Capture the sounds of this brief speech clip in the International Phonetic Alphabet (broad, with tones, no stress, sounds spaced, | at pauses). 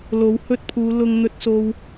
l o˨˧ w h ɵ˧ t̚ pʰ uː˨˧ l ʊ˧ ŋ n̪ ɵ˥ t̚ s o˥ w